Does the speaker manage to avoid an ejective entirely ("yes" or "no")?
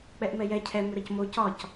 yes